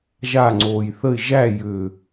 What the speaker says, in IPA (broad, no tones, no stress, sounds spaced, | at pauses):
ʒ a ŋ͡ǀ oː j θ ə ɪ̯ ʒ æ j ʏː